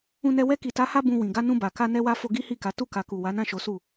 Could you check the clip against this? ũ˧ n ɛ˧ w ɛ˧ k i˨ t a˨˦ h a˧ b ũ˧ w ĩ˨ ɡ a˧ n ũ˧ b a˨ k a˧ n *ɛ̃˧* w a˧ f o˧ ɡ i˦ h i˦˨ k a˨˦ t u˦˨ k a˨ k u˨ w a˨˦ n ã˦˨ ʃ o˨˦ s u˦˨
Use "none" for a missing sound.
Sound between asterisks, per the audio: ɛ˧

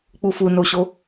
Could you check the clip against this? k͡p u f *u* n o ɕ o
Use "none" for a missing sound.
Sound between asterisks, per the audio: u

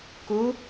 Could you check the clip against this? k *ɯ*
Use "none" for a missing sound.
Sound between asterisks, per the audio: u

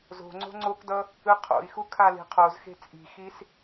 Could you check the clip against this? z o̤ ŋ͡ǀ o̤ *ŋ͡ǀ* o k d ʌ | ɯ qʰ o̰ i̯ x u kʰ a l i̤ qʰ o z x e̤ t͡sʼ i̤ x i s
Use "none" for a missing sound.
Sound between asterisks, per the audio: ŋ͡ǀ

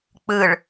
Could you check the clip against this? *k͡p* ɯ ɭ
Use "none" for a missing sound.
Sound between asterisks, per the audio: k͡p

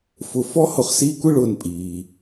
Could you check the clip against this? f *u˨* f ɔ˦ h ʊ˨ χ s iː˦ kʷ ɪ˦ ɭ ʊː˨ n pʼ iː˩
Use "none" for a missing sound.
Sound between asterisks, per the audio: ʊ˨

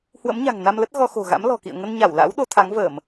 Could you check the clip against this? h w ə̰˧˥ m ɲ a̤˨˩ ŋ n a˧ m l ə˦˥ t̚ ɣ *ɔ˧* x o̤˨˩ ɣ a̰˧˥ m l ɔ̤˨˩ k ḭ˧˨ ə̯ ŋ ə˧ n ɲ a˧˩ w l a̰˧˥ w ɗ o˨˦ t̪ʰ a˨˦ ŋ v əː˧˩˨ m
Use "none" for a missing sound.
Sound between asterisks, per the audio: ɔ˧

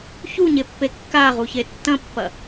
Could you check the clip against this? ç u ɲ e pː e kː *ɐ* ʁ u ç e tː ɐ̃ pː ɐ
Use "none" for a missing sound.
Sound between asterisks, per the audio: a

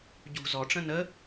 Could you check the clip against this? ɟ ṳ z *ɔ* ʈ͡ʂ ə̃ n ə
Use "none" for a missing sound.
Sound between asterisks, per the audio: ɔ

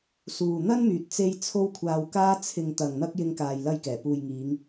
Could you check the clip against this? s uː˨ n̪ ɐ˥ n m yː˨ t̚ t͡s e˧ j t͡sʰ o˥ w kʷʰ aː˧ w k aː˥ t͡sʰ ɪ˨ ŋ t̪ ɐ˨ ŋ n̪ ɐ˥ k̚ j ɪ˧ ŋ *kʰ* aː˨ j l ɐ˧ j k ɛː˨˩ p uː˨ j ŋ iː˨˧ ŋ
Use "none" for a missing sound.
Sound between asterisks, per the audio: k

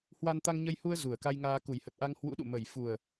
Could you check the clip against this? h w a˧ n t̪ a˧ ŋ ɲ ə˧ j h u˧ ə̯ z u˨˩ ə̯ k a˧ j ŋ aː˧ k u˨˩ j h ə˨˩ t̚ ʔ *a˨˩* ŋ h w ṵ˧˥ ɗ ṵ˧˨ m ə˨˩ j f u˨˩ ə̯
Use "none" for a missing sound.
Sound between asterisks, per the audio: a˧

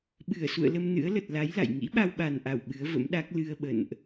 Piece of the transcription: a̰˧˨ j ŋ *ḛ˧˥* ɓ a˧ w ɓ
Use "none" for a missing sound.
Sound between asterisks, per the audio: ḭ˧˥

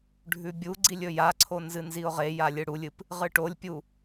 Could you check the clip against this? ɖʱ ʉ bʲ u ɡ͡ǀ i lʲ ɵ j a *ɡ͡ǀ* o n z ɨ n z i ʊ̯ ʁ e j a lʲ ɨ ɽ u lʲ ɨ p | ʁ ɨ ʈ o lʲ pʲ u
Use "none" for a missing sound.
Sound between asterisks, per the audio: ǀʰ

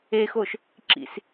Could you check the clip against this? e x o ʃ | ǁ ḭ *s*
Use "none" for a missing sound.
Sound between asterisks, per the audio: s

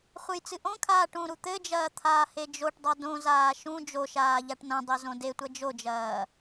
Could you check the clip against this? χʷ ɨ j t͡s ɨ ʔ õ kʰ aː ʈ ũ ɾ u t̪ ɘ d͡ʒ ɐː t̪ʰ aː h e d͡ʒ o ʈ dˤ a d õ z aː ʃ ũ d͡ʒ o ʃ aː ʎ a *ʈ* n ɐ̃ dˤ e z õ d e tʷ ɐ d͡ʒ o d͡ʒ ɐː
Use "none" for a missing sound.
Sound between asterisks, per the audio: ʈ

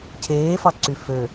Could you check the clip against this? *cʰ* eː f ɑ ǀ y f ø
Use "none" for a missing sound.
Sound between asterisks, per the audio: cʰ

